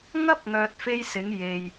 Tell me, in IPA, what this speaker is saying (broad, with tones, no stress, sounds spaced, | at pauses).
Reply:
ŋ ɐ˥ p̚ ŋ œː˨ t̚ f e˥ j s ɪ˨˥ ŋ j e˨ j